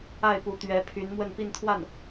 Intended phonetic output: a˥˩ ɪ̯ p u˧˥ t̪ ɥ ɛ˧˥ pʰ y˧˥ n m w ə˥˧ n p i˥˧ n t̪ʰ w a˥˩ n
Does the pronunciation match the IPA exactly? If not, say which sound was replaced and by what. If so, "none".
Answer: none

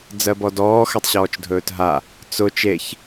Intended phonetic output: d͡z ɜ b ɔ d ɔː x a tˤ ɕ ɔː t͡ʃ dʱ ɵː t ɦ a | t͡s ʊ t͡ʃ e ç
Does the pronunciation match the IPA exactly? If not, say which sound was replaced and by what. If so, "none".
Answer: none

